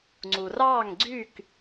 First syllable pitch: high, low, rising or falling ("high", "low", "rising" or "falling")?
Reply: low